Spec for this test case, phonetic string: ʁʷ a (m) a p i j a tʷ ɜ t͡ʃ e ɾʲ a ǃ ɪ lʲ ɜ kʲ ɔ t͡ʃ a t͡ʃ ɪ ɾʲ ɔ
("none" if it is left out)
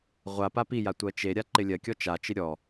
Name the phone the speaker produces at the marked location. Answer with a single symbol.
p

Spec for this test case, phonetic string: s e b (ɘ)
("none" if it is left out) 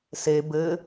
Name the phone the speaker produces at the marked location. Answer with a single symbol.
ɘ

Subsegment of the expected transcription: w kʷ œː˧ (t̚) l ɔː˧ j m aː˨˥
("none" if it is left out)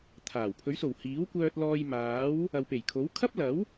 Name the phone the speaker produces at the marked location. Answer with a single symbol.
t̚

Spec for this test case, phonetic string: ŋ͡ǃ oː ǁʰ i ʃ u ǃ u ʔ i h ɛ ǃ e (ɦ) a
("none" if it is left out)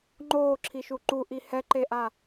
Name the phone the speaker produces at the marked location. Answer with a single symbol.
ʔ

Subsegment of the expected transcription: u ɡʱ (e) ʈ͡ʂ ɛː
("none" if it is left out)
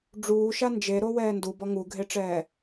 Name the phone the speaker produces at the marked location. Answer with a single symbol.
e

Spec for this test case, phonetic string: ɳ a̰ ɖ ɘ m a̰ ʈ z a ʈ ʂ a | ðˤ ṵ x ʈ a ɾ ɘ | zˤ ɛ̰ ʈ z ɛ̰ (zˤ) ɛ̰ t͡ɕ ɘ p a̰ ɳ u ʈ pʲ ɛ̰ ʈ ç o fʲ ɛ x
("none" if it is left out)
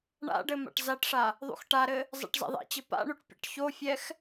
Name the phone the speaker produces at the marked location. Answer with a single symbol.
ðˤ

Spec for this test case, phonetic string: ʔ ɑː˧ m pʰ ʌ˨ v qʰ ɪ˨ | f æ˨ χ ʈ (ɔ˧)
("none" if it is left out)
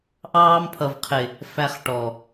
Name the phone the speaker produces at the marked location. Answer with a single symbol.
ɔ˨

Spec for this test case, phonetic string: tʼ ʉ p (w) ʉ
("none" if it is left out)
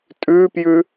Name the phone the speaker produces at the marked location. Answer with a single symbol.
j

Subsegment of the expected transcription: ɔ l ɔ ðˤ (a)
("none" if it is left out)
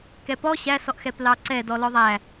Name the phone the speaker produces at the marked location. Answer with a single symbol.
æ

